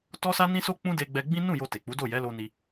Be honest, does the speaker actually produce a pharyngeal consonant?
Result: no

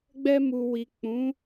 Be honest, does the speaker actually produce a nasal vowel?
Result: yes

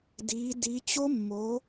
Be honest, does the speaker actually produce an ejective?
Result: no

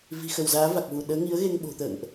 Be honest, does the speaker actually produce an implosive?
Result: yes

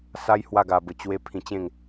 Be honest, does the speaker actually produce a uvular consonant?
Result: no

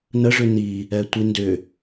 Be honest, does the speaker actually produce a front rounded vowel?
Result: yes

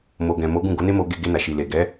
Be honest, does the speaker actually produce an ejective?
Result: no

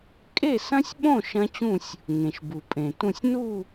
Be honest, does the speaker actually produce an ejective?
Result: yes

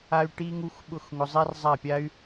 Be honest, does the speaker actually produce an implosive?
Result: yes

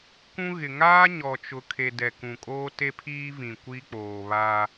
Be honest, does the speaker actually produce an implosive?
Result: no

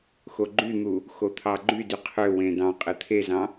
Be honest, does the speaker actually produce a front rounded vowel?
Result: yes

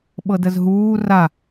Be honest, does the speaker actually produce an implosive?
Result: yes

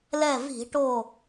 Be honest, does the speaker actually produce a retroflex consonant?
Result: yes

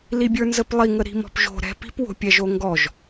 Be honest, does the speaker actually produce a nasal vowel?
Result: no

